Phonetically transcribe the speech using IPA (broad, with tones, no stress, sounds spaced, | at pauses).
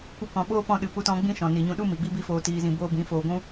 kʷ ə˧ k ɔ̃˨ ɓ oː˦ p ɔ̃˧ ɗ ɨ˨ p u˧ t ɔ̃˧ ɡ͡b ĩ˦ ʃ ɔ̃˨ n i˨ ɲ ũ˧ ɗ u˦ m i˨ ɡ͡b i˦ b i˦ f oː˧ t iː˧ z ĩ˧ b oː˦ b ĩ˨˦ f oː˧ ɡʷ ũ˦